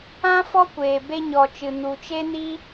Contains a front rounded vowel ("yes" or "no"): no